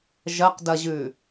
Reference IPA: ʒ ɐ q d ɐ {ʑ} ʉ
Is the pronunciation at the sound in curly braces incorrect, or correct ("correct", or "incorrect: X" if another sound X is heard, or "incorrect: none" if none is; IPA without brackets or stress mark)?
correct